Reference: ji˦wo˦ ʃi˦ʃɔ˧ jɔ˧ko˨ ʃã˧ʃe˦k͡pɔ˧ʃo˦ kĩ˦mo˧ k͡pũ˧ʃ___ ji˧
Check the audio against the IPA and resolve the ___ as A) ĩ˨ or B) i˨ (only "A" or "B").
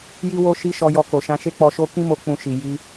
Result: B